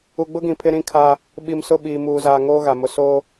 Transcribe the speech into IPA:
u˨ɡ͡bʊ˦ ɡĩ˨pʰɪ˦ ɾĩ˦kʰa˦ | ɓi˨msʊ˦˨ɓiː˨ muː˨zaː˨ŋoː˦ ɣa˨mʊ˦ so˦

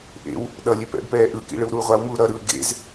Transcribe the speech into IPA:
ʔḛw | ɗʌlʲe pɛ̰bpɛː ʔɯkḭ ɭɯwɾuːʁʷawmuː ɾʌɾɯː ɡḛz

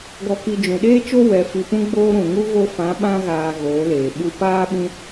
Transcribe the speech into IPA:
ɡɔ˧ki˧ d͡ʒũ˨ɗeː˦ t͡ʃo˦ wɛ˧ fi˧pũ˦ɡ͡boː˦ ɾũ˨ŋu˦ ɣo˧fã˨˦ɓã˧ ɣaː˨ ɣoː˨˦leː˨ ɓu˧paː˦ ɓĩ˦

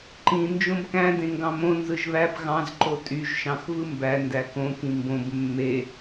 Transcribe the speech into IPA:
ǃĩ nd͡ʒõbkæ̃ dẽŋɡɑ̃mõ nzɯʒβæb ɣɑ̃z ǃotʼyʒ ʃɑ̃xvɯmbæ ndækõ kĩmbõb mːe

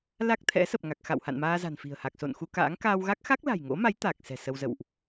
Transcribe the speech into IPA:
la˦˥k̚t̪ʰɛ̰˧˥ sə˨˩p̚ŋa˨˩k̚xa̰˧˨w ha̰˧˨nmaː˧ za̤˨˩nfi̤˨˩ə̯ha˨˩k̚ so̰˧˨n xu˧ka̰ː˧˥ŋ kaː˧wɣa˦˥k̚ xa˦˥k̚la̤˨˩jŋo̰˧˥ma˨˦j t̪a˨˩k̚ sɛ̤˨˩sə˧wzə̰˧˨wʔ

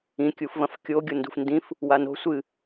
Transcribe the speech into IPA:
ĩkʲufvɐ̃f kʲoɡʲo ndṳfndĩf | wano̤ sʷɨ

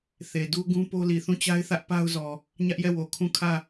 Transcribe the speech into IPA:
θe˨du˦ɡũ˦ po˦li˨ θũ˦˨t͡ɕa˦ɪ̯θä˦ʔ pa˦ʊ̯zɔ˨ | ɲä˦ʔjɛ˦˨wo˨ kʰũ˦˨ kʰä˦˨

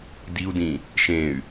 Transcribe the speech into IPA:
diu̯dĩ | ʃẽy̯

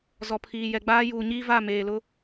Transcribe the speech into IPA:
zɔ˨pʰiː˨jɛ˨ɡ͡baː˦ juː˨ɲiː˦va˦˨ meː˨lʊ˦

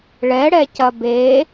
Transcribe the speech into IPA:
ɭɛɽɛcɐ be

